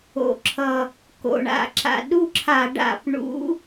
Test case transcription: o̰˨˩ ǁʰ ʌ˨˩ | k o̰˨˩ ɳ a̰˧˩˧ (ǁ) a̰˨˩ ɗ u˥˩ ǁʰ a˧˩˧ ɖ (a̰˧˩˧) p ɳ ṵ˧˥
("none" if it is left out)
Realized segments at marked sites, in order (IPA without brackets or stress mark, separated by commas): ǁ, a̰˧˩˧